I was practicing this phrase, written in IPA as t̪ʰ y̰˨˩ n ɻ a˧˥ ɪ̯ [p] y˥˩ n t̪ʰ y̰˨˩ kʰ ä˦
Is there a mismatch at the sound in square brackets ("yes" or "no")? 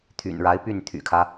no